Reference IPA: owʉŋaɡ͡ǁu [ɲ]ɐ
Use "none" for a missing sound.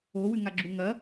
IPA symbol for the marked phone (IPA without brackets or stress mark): ŋ